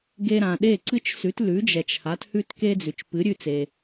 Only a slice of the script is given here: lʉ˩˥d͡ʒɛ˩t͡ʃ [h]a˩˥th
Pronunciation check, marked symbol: correct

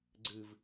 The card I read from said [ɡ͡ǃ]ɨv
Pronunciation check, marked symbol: incorrect: ɡ͡ǀ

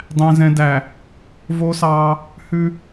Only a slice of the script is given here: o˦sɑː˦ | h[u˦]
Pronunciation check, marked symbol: incorrect: ʉ˦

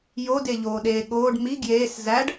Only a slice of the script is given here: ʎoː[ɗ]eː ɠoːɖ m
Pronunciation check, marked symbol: correct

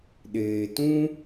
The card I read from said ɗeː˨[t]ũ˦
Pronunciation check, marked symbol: correct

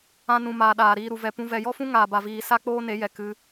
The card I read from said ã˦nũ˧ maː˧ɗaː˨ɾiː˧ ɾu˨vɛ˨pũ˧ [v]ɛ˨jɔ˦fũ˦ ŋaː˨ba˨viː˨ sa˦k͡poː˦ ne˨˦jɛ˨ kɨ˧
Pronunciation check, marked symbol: correct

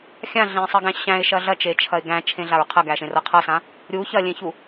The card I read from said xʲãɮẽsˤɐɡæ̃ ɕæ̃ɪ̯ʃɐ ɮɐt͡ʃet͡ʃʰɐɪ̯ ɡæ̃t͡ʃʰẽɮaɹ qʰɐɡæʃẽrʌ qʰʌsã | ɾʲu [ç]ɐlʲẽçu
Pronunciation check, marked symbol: correct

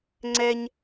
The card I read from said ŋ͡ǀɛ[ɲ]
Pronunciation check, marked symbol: correct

